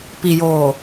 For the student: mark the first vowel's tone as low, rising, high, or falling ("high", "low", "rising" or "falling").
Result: low